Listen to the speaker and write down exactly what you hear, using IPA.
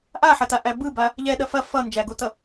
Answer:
ʔ a ħ ɐ t a ʔ æ b ɯ b a | ʎ ɛ ɗ ɐ f ɐ f ʌ n d͡ʒ æ ɡ o t ʌ

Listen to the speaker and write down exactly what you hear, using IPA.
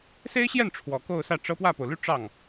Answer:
s e˥ ɪ̯ ɕ j ɛ˥˩ n ʈ͡ʂʰ w ɔ˨˩ k o˥˧ ʊ̯ s ä˥˩ ʈ͡ʂ ɤ˥ p w ä˥˩ p o˩ ʊ̯ l y˥˧ ʈ͡ʂ ɑ˥˩ ŋ

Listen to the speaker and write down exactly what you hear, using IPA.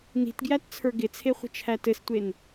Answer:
n i̤ t ɡ j æ t t͡sʰ ə˞ ɡ ɪ t͡sʰ e χʷ ə̤ t͡ʃʰ æ t ɘ s tʷ e n

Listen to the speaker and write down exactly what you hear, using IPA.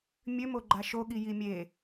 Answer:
mʲ ø m o ɡ͡ǃ a ʃ o ɠ i j i mʲ e

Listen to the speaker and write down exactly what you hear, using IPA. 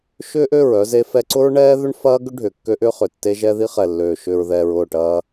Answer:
ʃ ʏː˦ ʔ ø˦˨ ɹ œ˦ z e˦ f ɛ˦ ǀ ʊ˦ ɹ ɳ ɛː˦ ð ʏ˦ ɳ f ɐː˦ ɡ ʏ˦ ɖʱ ʏː˨ kː ø˦ ʔ ʏː˦ χ ʏ˨ tː e˦ ʒ ɛ˦ ð i˦ χ ɛ˨ lː øː˨ ʃ ʏː˨ ɹ ð ɛː˨ ɹ ʊː˦˨ ʈ ɐː˦

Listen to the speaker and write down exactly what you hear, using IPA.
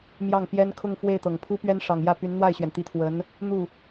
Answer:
m j ɑ˥˩ ŋ p j ɛ˥ n kʰ ʊ˥˧ ŋ f w e˥˩ ɪ̯ t̪ ɤ˨˩ ŋ pʰ u˥ p ɥ ɛ˥ n ʂ ɑ˨˩ ŋ j ä˥˩ p y˧˥ n n̪ w a˥˩ ɪ̯ ɕ ɥ ɛ˩ n t̪ i˧˥ t̪ʰ w ə˧˥ n | n̪ u˥˩

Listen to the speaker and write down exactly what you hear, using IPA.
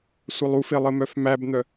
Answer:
sʷ ə lˠ u f e lˠ ɘ m œ f m æ b n̪ œ

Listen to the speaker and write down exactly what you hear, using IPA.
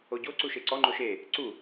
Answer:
o ɟ o ǀ u ʃ e ǀ ɔ ŋ͡ǃ o ʃ e | ǀ u

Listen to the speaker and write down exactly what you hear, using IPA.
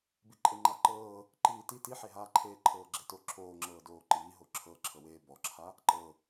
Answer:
b i ǃʼ e ŋ͡ǃ a ǃ ɤː | ǃ iː t i t i ħ e ɦ aː ǃʰ eː ǃʰ ɤː ɡ͡ǁ e t o ǁʰ oː ŋ͡ǁ ɤː d oː ǃ iː ɦ o ǁʰ ɤ ǁʰ ɤ w eː b ɔ ǁʰ a | ǃ ɤ

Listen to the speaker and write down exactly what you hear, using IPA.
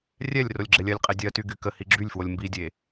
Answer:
rʲ ɛ lʲ r o lʲ ɡ͡ǁ ɛ lʲ ɜ lʲ qʼ ɛ dʲ ɜ t y ɡ y k ə h i ɡ͡ǁ y lʲ f w o lʲ m b i dʲ e

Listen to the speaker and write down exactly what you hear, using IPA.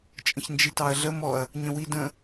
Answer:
t͡ʃʼ ə̃ ç n d͡ʒ i t ɑ ɐ̯ ɮ ə m ɔ ɐ̯ | ɲ ə̃ w i d ə̃

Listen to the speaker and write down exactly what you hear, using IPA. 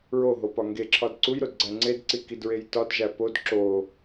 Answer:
ɹ o ɦ o p ɒ ŋ ɡ e ǁʰ ɒ d ǀ u j ɾ o d ɡ͡ǀ æ ŋ͡ǀ e d ǀ i k i d ɹ e j t ɒ d ʒ æ p o d ǁ o

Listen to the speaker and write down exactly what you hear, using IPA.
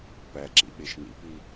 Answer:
p æ ǁ ḭ ɓ e ʃ n ḭ p i

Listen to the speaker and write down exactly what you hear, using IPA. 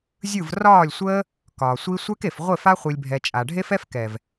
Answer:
zʲ ɯ˦˨ v r ɒː˦˨ lʲ sʷ əː˦ | k ɒː˨ sʷ i˦ sʷ ɛ˦ k e˨ f ʁʷ e˦˨ f a˦ χʷ i˨ lʲ bʱ ɛ˨ t͡ʃʼ a˨ ɖʱ e˦ f ɛ˦ f k ɛ˨ v

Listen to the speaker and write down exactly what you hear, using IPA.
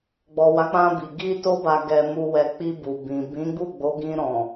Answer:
ɡ͡b ɔ˨ w a˨˦ k͡p ã˧ b i˨ ɡ i˧ t o˧ b a˨ ɡ ɛ˨ m u˨ w ɛ˨ k͡p i˧ b u˨ b ĩ˨ b ĩ˨˦ ɡ͡b u˦˨ ɡ͡b o˨˦ ɡ ĩ˧ ɾ ɔ̃˨

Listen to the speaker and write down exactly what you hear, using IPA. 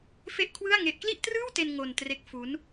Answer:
f e˥˩ ʔ kʰ w ɯ˥˩ a̯ ŋ e˦˥ ʔ k l i˥˩ ʔ t r ɯː˥˩ w t e˧ n ŋ o˧ n t r e˦˥ k̚ f u˦˥ n

